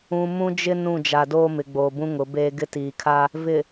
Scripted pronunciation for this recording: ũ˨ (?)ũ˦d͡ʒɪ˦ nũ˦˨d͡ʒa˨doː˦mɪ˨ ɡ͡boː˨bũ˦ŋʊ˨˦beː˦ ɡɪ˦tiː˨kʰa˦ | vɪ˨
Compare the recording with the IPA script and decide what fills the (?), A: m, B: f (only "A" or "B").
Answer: A